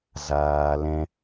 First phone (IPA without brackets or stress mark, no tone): z